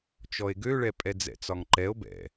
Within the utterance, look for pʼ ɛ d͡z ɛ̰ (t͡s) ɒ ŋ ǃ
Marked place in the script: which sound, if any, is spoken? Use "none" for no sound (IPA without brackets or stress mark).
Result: t͡s